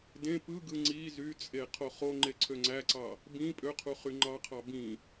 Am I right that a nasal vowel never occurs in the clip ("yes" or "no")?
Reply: no